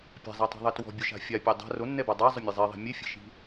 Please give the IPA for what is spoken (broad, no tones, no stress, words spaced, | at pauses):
pʲa̤zˤɛtˤi̤ðˤɛ twɔ̤bʲʊʃa̤ fʲapʲɛ dˤa̤ ronːɛba dˤazˤʊmʲe zˤiðˤi̤ mʲefʲe̤ʃi̤